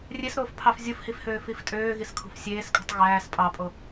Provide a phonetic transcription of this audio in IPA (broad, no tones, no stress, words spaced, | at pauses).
rʲesɾoːfpʰɑf zʲufhifhøː fiftʼøːɣiskʰṳf sʲeːskʼṳtˤ ɣæːs pʼɑpʼo